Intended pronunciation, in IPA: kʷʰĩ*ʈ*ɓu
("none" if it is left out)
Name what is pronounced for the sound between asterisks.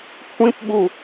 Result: p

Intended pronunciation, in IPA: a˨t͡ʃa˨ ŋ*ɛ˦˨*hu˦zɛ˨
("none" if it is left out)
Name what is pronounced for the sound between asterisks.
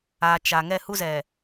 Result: ɛ˦˨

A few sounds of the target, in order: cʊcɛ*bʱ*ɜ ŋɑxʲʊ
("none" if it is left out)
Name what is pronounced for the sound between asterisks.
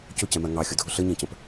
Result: m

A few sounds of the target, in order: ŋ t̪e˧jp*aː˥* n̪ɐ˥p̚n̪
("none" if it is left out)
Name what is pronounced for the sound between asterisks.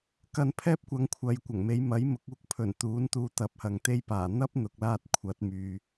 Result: aː˨˩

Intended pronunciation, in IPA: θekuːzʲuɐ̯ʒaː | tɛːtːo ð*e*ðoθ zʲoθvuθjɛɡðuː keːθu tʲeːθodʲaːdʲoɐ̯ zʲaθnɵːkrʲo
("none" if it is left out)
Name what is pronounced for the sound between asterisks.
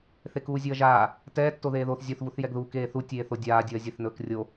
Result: eː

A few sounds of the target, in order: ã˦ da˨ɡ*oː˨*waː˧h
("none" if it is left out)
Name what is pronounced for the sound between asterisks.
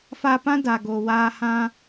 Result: oː˨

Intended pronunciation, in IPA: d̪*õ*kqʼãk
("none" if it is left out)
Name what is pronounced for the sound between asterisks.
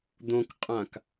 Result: õ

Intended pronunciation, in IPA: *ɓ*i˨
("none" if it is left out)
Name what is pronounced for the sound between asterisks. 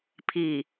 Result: pʰ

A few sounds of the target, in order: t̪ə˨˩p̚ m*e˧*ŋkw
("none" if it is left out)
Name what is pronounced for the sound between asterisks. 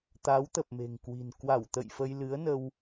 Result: e̤˨˩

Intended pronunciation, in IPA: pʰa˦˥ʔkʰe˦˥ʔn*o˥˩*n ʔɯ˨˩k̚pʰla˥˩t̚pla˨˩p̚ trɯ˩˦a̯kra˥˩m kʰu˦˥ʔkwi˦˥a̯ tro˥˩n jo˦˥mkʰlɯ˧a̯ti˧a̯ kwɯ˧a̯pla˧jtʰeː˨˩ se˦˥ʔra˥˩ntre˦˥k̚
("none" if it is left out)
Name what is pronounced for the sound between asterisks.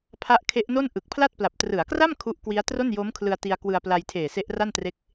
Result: o˥˩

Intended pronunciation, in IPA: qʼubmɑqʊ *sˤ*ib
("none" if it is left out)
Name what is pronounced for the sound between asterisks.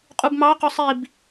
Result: sˤ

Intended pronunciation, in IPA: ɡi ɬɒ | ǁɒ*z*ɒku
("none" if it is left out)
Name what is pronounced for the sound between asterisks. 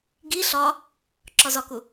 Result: z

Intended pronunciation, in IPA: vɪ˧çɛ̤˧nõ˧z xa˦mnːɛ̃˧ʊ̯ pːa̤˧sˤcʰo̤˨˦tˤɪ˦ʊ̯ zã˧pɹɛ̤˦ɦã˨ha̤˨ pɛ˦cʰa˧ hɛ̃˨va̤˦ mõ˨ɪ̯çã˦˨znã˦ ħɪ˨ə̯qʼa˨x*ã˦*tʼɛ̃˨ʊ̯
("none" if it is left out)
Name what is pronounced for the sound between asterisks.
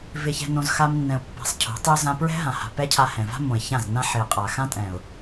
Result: ã˦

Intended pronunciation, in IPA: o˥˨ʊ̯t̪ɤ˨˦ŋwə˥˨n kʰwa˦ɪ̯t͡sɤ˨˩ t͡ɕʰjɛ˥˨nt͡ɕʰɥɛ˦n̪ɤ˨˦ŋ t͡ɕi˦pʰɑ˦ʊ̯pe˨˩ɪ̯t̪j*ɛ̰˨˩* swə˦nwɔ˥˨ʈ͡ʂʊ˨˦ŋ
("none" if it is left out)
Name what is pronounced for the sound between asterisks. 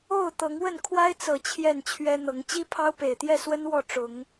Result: ɛ˥˨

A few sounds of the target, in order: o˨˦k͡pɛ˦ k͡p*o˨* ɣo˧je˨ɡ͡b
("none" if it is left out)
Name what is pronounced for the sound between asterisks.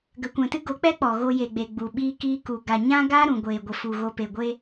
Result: ɔ˨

